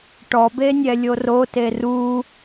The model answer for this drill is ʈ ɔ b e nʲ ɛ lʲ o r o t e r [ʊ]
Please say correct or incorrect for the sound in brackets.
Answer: incorrect: u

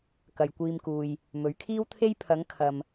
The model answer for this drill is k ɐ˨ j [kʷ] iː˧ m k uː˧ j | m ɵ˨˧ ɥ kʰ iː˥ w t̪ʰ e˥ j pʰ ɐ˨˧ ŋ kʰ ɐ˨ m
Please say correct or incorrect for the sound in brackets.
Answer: correct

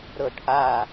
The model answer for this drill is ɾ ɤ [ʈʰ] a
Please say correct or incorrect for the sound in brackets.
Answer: correct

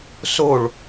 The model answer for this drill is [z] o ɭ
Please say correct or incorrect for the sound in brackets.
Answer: incorrect: s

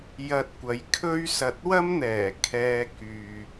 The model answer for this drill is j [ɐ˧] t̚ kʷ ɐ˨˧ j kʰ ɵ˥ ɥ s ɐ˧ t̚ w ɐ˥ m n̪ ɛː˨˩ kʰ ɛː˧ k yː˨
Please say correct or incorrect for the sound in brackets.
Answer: correct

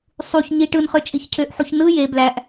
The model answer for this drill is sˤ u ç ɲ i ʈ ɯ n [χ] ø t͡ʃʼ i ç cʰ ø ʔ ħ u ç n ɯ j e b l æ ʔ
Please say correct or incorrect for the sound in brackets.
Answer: correct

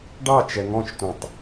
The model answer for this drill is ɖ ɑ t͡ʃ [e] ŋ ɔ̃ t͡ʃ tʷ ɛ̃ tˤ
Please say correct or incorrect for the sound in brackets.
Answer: incorrect: ɛ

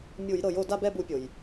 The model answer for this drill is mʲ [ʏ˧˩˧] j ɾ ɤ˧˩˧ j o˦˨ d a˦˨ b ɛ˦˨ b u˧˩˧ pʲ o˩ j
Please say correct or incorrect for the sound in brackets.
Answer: incorrect: u˧˩˧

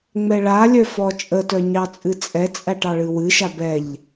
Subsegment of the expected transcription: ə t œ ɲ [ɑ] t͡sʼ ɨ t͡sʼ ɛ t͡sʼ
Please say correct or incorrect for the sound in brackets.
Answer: correct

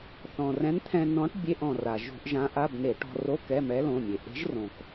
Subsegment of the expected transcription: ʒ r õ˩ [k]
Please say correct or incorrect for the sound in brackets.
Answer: correct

